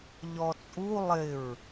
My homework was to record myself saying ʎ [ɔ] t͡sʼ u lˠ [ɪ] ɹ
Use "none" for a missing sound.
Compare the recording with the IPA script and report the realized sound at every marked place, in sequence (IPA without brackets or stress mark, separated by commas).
ɔ, ɪ